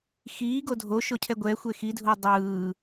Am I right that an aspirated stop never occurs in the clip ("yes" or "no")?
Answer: no